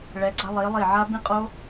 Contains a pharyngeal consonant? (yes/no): yes